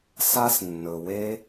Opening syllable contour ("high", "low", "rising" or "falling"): high